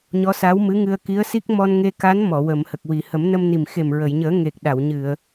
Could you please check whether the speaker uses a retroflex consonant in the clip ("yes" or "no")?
no